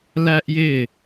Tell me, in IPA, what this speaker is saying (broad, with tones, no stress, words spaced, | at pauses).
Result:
læ˦ʔjɪ˦˨